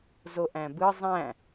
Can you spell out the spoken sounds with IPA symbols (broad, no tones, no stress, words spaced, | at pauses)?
zoʔæ̃bɯ zˤæ̃